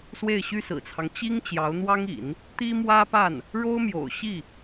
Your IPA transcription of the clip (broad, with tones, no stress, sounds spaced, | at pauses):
s w e˥˩ ɪ̯ ɕ y˥ s ɹ̩˨˩ t͡sʰ ɑ˦ ŋ t͡ɕ i˥ ŋ t͡ɕ j ɑ˧˥ ʊ̯ n̪ w ɑ˥ ŋ ḭ˨˩˦ n | t̪ i˥ m w ä˥ p a˥˩ n | ɻ o˥ ʊ̯ m j o̰˨˩ ʊ̯ ɕ i˥˩